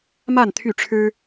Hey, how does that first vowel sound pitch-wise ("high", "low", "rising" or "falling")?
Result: falling